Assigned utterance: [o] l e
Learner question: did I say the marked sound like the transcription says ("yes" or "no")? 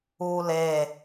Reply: no